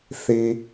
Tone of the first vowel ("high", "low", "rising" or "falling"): low